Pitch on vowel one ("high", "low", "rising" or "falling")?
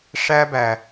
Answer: high